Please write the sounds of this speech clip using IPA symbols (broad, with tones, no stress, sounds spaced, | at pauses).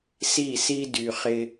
s i˦˨ s i˦ d y˧ χ ɪ˦